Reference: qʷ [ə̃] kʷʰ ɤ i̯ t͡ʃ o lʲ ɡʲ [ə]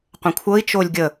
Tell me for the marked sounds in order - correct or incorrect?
correct, correct

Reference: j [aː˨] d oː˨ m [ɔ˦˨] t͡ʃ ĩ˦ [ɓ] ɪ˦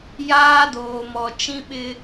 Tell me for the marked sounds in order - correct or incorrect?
incorrect, incorrect, correct

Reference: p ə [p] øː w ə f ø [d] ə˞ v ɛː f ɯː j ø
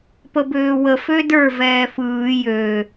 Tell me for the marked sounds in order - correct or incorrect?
incorrect, correct

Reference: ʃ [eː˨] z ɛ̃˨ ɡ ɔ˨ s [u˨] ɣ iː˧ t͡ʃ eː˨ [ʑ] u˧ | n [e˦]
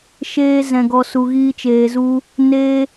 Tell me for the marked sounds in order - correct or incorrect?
incorrect, correct, incorrect, correct

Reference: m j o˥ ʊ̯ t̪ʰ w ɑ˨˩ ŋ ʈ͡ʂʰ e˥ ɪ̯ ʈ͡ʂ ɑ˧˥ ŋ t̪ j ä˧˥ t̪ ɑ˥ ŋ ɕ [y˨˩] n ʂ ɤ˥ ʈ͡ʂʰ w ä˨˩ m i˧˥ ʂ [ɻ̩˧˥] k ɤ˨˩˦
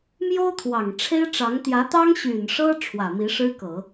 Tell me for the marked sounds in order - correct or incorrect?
correct, incorrect

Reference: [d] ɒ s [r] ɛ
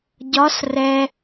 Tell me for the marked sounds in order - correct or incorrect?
incorrect, correct

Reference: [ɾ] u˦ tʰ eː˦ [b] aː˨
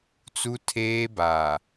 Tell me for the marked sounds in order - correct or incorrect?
incorrect, correct

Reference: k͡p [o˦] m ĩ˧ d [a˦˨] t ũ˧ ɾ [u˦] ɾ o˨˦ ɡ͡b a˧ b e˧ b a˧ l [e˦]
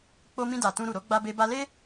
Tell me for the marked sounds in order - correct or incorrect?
incorrect, incorrect, incorrect, correct

